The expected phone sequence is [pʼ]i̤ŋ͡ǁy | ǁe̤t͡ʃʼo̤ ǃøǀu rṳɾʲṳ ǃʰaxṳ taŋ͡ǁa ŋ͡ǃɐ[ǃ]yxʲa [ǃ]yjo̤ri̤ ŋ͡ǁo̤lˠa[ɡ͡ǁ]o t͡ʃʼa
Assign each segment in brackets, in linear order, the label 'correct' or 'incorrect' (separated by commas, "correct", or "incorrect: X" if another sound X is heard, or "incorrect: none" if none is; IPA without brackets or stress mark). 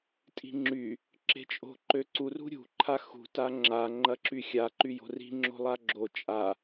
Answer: incorrect: tʼ, incorrect: ǁ, correct, correct